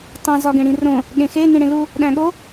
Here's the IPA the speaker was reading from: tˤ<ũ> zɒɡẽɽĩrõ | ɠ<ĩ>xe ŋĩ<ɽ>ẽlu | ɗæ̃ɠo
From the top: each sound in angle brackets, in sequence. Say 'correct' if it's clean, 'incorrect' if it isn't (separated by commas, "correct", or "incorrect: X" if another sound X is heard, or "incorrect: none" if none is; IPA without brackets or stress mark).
correct, incorrect: ẽ, correct